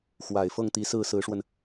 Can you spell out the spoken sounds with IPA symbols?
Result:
xwa˨˩ɪ̯fɤ˥˩ŋt̪i˧˥ sɹ̩˥˩sɹ̩˧˥ʂwə˧n

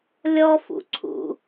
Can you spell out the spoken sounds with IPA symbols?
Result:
lʲɔ fṵǀʰṵ

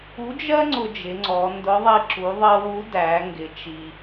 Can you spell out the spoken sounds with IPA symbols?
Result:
u˧˥d͡ʒɜ˥ ŋ͡ǀʊ˧d͡ʒɪ˩˧ ŋ͡ǀɔ˩˧ndʊ˧˥ðˤi˧ ǁu˩˧ðˤə˧ wu˧˥dæ˩˧ ŋɡɪ˩ t͡ʃi˩

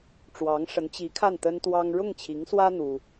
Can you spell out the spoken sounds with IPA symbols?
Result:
ʈ͡ʂwɑ˧˥ŋʂə˧˥nt͡ɕi˧˥kʰa˥˩n t̪ə˥nt̪wɑ˥ŋ ɻʊ˥˩ŋt͡ɕʰi˧˥ŋswä˥ n̪u˥

